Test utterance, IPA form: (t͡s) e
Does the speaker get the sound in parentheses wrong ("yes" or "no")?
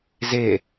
yes